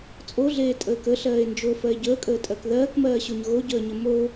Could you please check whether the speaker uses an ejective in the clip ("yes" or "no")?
yes